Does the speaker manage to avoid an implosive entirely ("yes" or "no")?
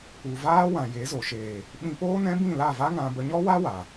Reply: no